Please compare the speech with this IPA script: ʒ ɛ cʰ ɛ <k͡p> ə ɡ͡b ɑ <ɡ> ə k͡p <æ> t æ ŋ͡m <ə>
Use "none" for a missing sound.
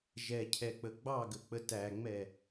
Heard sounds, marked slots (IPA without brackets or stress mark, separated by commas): k͡p, ɡ, ə, ɛ